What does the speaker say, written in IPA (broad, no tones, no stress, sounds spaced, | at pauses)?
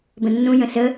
b ə̃ nː ũ j ə̃ s ə